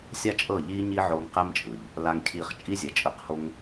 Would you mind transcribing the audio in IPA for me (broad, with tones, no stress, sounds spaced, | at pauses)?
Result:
sʲ a˦ t͡ʃʼ ɤ˦˨ ʎ iː˦ ɲ i˦ ʕ o˧ ŋ q ɛ˦ m t͡ʃʼ ɯ˨ ʎ | l a˧ ŋ cʰ iː˧ χ t͡ʃʼ i˦ zʲ ɛ˨ t͡ʃʼ ɯ˧ q h o˦ ŋ